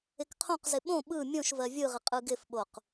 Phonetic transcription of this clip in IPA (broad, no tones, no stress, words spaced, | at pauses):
ɪkqʰõqzɪ ɓõ ɓɯ mʲõʃ vɜvʲɯʁɪ qʼɯɡɪfɓoq